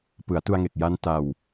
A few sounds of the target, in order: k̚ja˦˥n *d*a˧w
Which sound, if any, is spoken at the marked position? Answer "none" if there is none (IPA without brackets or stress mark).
t